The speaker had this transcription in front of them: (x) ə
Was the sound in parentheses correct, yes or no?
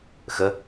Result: yes